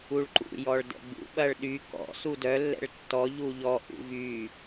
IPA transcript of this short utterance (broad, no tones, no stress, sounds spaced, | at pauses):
u ɭ ǃ ṵ j ɔ ɭ d ɛ̰ ɡ͡b ṵ ɓ ɐ ɭ ɗ y k ɔ̰ s u d œ lː ɛ̰ ɭ tː ɔ ʎ u ʎ ɔ ʔ ṵ v y